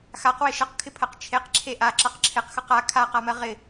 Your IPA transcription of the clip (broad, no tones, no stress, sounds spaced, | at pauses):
x a q w ɪ ʃ ʌ q kʰ ɪ pʰ ɜ q t͡ʃʰ e q ǁʰ e ʔ a ǁ ʌ q ǁʰ ɪ q x ʌ q a kʰ a q a m ɜ ʁ ɪ